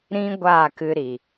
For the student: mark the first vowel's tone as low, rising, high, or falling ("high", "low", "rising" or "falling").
high